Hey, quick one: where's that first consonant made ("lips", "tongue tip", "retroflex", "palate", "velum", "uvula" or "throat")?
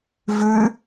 lips